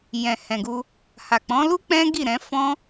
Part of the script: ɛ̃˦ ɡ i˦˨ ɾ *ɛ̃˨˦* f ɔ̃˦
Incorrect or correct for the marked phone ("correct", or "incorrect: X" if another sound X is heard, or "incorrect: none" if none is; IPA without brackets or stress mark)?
correct